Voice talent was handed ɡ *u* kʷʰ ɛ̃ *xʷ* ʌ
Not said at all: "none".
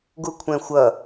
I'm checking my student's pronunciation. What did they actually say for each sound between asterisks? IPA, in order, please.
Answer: u, xʷ

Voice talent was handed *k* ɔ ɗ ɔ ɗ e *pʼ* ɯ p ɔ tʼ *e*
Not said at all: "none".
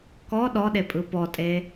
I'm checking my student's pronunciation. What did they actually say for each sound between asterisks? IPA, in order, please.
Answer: k, pʼ, e

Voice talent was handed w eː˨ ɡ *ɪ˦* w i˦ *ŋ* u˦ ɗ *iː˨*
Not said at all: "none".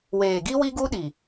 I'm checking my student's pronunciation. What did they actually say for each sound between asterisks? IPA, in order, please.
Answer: i˦, ɡ, i˨

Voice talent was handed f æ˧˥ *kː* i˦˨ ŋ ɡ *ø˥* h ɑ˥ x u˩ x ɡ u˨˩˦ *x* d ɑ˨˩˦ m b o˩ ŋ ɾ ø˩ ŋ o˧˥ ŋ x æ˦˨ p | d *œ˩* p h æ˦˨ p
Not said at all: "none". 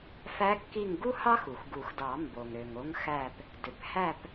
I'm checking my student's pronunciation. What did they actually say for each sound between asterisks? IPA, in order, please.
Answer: kː, u˥, x, ø˩

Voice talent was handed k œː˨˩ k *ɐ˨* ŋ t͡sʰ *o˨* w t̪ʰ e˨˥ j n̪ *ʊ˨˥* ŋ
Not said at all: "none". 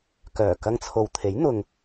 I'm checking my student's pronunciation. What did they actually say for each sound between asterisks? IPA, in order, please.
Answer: ɐ˧, o˨, ʊ˨

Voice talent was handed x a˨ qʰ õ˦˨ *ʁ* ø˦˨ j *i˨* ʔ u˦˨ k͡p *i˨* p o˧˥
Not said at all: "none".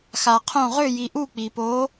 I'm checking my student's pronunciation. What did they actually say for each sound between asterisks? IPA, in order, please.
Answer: ʁ, i˨, i˨

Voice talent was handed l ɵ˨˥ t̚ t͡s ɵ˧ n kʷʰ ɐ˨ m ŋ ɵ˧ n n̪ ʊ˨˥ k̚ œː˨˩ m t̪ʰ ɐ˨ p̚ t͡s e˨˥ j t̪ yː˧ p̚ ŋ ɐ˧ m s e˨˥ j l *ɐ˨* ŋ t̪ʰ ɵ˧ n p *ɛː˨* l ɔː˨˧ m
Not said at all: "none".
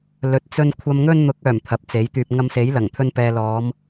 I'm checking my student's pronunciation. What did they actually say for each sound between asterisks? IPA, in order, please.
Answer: ɐ˨˩, ɛː˨

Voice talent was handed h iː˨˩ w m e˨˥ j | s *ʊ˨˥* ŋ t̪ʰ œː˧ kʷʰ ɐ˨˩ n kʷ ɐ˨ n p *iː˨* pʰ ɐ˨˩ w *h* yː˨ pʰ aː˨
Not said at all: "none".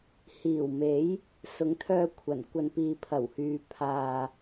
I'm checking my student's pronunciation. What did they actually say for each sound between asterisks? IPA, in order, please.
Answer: ʊ˨˥, iː˨, h

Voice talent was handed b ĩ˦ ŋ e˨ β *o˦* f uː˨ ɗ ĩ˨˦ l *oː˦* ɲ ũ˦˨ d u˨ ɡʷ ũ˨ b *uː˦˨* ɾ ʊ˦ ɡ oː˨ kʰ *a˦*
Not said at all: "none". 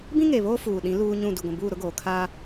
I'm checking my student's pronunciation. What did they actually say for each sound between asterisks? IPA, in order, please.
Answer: o˦, uː˦, uː˦˨, a˦

